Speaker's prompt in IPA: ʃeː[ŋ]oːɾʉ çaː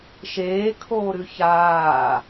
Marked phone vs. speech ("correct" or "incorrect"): incorrect